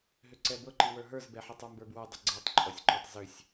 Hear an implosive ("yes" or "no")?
no